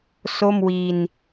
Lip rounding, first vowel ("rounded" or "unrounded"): rounded